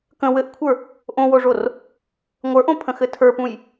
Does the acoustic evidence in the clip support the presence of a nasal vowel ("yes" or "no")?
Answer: yes